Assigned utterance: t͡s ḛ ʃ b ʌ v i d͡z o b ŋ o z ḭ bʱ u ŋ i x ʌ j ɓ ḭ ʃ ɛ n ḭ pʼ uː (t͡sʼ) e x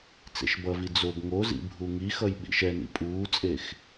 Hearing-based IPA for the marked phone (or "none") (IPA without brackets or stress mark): t͡sʼ